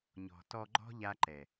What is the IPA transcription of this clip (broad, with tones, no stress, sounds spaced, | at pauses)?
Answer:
ɲ ɔ̤˨ t ɔ˧ ɡ͡ǃ ɔ̤˦ ʎ a˦ ǃ ɛ˨